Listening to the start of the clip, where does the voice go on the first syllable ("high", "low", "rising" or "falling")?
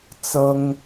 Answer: high